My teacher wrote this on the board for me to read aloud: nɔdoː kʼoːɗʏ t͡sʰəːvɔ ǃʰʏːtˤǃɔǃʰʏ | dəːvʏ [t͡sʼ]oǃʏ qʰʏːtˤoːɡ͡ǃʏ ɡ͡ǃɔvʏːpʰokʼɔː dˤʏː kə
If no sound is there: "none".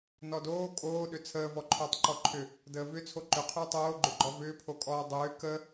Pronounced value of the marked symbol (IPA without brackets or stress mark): t͡sʰ